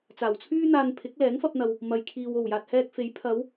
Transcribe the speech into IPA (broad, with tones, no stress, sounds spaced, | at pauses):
t͡s aː˨˩ w t͡sʰ yː˥ n̪ aː˧ n pʰ ɪ˨˥ k̚ l ɛː˨˥ ŋ f ɐ˧ p̚ n̪ ɐ˨ w | m ɐ˨ j kʰ iː˨ w o˨˩ w j aː˨ t̚ h ɛː˧ k̚ f e˨˥ j pʰ ɐ˨˧ w